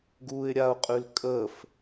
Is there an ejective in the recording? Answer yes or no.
yes